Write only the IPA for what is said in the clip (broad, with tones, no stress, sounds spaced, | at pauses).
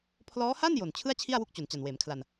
pʰ l ɔː˦˥ h a˥˩ n j o˨˩ n t͡ɕʰ ɯ˥˩ a̯ t͡ɕʰ i˥˩ a̯ w u˦˥ k̚ t͡ɕ o˨˩ n t͡ɕ a˨˩ n w eː˩˦ m kʰ l a˧ n